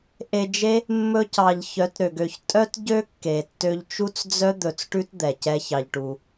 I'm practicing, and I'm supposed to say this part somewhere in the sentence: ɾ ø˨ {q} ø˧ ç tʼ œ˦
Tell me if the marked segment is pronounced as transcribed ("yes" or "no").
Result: no